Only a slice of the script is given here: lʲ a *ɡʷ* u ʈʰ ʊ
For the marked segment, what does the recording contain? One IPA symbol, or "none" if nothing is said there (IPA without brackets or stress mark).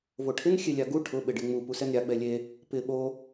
ɡ